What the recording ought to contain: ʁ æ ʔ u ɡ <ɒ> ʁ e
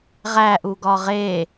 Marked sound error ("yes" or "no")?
no